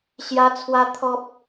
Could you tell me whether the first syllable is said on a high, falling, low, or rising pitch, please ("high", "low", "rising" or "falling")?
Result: high